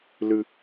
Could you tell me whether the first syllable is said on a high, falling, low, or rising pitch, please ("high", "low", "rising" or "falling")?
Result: high